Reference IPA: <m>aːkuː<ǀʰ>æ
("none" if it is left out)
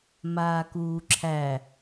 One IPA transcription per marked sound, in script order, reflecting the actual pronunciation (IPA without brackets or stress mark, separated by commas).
m, ǁʰ